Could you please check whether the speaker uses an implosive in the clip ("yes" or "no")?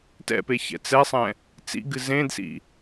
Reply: no